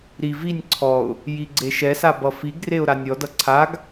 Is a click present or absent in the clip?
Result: present